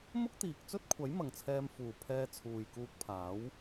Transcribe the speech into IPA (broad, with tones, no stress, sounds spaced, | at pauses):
m ʊ˥ k̚ t̪ iː˨ k̚ t͡s ɵ˥ t̚ kʷʰ ɐ˨˥ j m ɐ˨ ŋ t͡sʰ ɛː˧ m f uː˨˩ pʰ ɛː˧ t͡sʰ uː˨ j k uː˧ k̚ pʰ aː˨˥ w